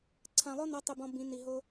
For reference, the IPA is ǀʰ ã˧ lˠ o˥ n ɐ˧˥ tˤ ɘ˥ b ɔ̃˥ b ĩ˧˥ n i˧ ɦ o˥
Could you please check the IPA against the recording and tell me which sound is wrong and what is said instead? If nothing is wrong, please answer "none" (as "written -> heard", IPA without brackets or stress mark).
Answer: none